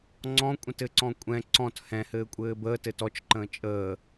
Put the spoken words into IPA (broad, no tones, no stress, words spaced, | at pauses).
ŋ͡ǀɔ̃kʷʼə̃tɘǀɔ̃ kʷʼɛ̃ ǀɔ̃t hɛ̃hɘːkʷʼɘː bəːtɘt ɔt͡ʃǃə̃ː t͡ʃʼəː